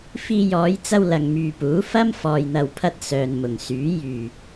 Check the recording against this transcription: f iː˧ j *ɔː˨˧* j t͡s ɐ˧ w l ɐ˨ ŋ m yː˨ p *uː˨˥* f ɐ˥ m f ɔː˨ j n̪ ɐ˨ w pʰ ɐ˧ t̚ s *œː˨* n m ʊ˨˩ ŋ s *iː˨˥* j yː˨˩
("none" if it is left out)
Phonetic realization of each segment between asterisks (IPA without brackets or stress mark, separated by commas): ɔː˨˧, uː˨˥, œː˨, yː˨˥